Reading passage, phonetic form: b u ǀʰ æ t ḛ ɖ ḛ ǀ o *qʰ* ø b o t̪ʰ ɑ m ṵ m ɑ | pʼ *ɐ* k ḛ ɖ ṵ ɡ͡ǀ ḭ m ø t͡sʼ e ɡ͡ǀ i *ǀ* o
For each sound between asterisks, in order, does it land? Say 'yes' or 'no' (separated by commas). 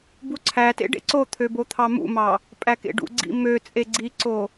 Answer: no, no, yes